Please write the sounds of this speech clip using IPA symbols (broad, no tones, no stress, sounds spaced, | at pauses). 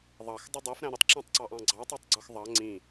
ðˤ ɑ x dˤ u dˤ æ f ɾ æ̃ ɾ ʊ tˤ ǁ æ̃ tˤ ǀ ɑ ʔ ɑ̃ ɡ͡ǀ ɑ tˤ ɛ tˤ ɡ͡ǀ ə˞ x ðˤ ɑ ŋ͡ǀ ĩ